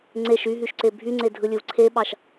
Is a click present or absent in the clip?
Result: present